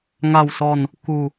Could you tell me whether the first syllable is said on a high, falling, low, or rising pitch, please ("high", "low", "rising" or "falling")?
falling